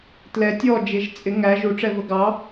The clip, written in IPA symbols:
t l ɛ tʲ ɔ d͡ʒ ɪ ʒ t͡sʼ ɪ ŋ æ ʒ u ʈ͡ʂ ɛ v ə ɡ ɑ

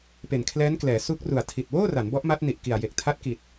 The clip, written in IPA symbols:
p e˨˩ n kʰ l ɛː˦˥ n k l ɛː˩˦ s u˦˥ k̚ r u˨˩ a̯ tʰ i˨˩ t̚ w oː˥˩ r a˩˦ n b ɔ˦˥ ʔ m a˦˥ t̚ n i˨˩ ʔ k i˨˩ a̯ j e˨˩ k̚ tʰ a˦˥ t̚ k i˨˩ t̚

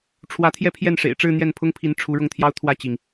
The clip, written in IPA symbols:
ʈ͡ʂʰ w ä˧˥ t̪ʰ j ɛ˥˧ pʰ j ɛ˥˩ n ʂ ḛ˨˩ ɪ̯ ʈ͡ʂ ɻ̩˥˧ n̪ j ɛ˥˩ n pʰ ʊ˥ ŋ pʰ i˧˥ n ʈ͡ʂʰ u˧˥ ɻ ʊ˥˩ ŋ t̪ʰ j ɑ˥ ʊ̯ t̪ʰ w ä˥˩ t͡ɕ i˩ ŋ

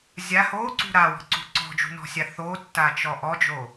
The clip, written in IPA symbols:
zʲ a h o ǀ ṳ ɾ a w ɔ̤ ǀ ṳ ǀ ɔ̤ d͡ʒ ṳ n ɔ̤ sʲ a θ o tː a t͡ʃ ɔ ʔ ɔ d͡ʒ o

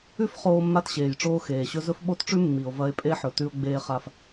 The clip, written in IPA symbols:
ʉ˦ f χ oː˦ mː a˦ t ɕ eː˨ j ʈ͡ʂ oː˦ x eː˨ ɕ ɵ˦ z ɵ˦ f ɓ o˦ t ʈ͡ʂ ʉ˦ mː i˨ o̯ v ɐ˦ e̯ pʼ e˦ ħ ɵ˨ t ʉ˦ o̯ ɡ͡b eː˦ χ a˦ f

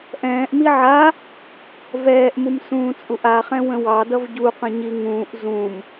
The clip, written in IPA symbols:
ʔ ɛ̃ː ʔ m i ʕ a | v ɛː ʔ m u m s ũː t͡sʼ u ʔ a χ ɛ̃ w ə̃ w ɑ d ʌ v ɟ u q ə̃ ɲ i ŋ ũː ʔ z ũ m

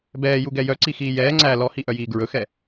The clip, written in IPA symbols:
b ɛː j u ɡ ɛ j œ ǀ i x iː j ɛː ŋ͡ǀ æ l ɔ h i ʔ œ j iː ɡ ɹ ɵ x ɛ

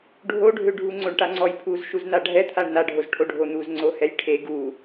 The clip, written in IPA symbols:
ɖʱ o ɖʱ ø ɖʱ u ŋ͡ǀ o ɳ ʈ a ŋ͡ǀ ɔ j pʰ u z ʃ u z n a ɖʱ ɛ t̪ʰ a ɳ n a ɖʱ o z ʈʰ o ɖʱ o n̪ u z ŋ͡ǀ o h ɛ j ʈʰ e ɡ u

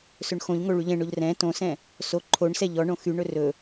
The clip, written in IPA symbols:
s ɵ ɳ x õ ʎ ŋ o ɭ y ʎ ɛ̃ ɳ o ʎ r ɛ̃ t õ s ɛ̃ | s o ǃʰ o ɳ s ɛ ʎ ɔ ɳ õ x y ɳ ɵ r ɵ

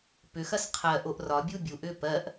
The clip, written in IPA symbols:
p ʏ x ɐ s qʰ ɜ ʔ o ʔ r ɒ bʲ u bʲ u ʔ ʏː p ɜ ʔ

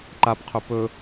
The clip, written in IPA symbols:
ǃ a p qʰ ɵ p ɵ

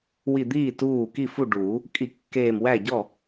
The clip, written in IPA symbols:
w i˧˩ d̪ iː˥˩ t uː˥˩ k i˥˩ f u˥˩ ɖ uː˨˩˦ | kʼ i˧˩ kː eː˧˩ m w æ˥˩ ɟ ɔ˥˩

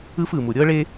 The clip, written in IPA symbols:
ɯ˦ f ɯ˨ m u˨ ɾʲ ɤ˦ ɭ e˦

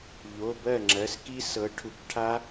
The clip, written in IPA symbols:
ʎ o˩˧˩ b ɜ˥˩ ŋ͡ǁ ɜ˩˧˩ s k i˦˥ s ɤ˨˦ ʈʰ u˨˦ k ʈʰ a˦˥

